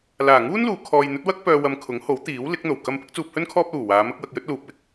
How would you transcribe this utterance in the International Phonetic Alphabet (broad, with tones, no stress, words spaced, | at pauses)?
laː˨˩ŋuː˥n luː˨˧ kʰɔː˨jn̪ɵ˨˥t̚wɐ˥k̚ pœː˧wɐ˧m kʰʊ˨˥ŋho˨˥wt̪iː˨˥w lɪ˨˥k̚n̪o˨˩w kɐ˧m pɪ˨˥k̚t͡suː˧p̚hɵ˥n kʰɔː˥p̚luː˨˩waː˨˧ mɐ˥k̚wɐ˧k̚ jɵ˥t̚luː˨p̚wɪ˨˥k̚